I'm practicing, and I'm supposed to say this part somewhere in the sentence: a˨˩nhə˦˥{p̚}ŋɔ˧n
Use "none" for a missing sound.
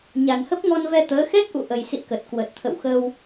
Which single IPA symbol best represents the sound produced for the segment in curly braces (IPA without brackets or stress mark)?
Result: p̚